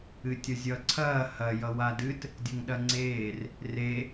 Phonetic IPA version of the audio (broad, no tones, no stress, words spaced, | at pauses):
ɨtʲʌzʲʌ ǀʰɐː hɐ jʌwadɨt | dʲɐŋɗɐŋ͡ǀeːr | re